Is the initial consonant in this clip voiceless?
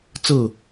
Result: yes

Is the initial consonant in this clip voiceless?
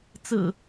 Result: yes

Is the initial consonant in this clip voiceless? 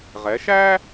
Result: no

